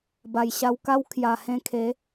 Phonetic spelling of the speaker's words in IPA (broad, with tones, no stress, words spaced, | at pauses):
ba˨˩jɕa˧wka˦w kʰja˨˩hẽ˧kʰe˨˦